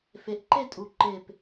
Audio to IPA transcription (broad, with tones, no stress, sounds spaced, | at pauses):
f e˩˧ ʔ ǃ e˥˧ tʼ u˩˧ ǃ e˧˩ p